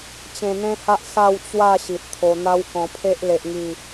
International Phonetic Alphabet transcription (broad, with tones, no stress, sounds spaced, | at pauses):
t͡ɕ ẽ˧ n̪ ẽ˦ h a˦ ʔ s a˥˧ w t͡ɕ w a˥˧ ɕ i˨ t̚ t̪ʰ o˧ n̪ a˦ w k ɔ̃˧ pʰ e˦ ʔ l e˦ ʔ ŋ i˥˧